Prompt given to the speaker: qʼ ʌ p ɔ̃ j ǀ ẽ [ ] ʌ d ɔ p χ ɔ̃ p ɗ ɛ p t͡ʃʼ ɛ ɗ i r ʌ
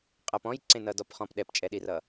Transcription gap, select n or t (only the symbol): n